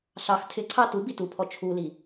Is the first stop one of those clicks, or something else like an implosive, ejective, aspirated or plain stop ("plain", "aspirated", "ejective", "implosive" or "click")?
aspirated